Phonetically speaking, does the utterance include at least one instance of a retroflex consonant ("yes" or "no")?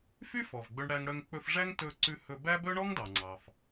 yes